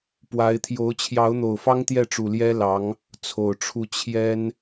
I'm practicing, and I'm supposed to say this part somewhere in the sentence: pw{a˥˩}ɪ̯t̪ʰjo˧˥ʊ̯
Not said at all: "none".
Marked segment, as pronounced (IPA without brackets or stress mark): a˧˥